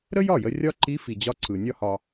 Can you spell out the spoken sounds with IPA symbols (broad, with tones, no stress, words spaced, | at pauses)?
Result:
ɾə˥jɒ˥˩jə˧ rʲɒ˥ ǃi˧˥fi˩d͡ʑɒ˧ǀɯ˩ nʲɒ˥hɒ˧